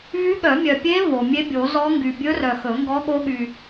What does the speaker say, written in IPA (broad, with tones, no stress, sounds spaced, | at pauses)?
v y˧˥ ɠ œ˨˩˦ mʲ œ˨ pʲ e˧˥ v o˨ mʲ e˧˥ bʲ o˨˩˦ z ɔ˧˥ ŋ ɡ y˨ bʲ ɵ˧˥ r œ˨ x ɵ˨˩˦ ŋ ɡ ɔ˧˥ ɠ o˧˥ ɠ y˨